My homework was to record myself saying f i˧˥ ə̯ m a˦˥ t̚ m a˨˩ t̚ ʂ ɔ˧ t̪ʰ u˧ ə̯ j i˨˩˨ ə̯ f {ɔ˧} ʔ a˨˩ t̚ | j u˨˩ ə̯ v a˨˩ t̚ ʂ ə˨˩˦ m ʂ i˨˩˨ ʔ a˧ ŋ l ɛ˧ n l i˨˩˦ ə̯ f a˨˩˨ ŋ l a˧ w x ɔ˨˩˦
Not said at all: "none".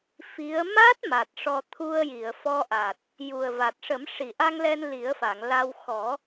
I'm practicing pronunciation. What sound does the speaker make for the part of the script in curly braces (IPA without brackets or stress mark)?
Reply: ɔ˧